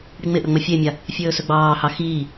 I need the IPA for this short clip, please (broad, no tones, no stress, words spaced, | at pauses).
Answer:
ɽiŋ͡mɪʔɵ ŋ͡məfʲemʲa | fʲɵːsɵɡ͡bɑːhɑ xiː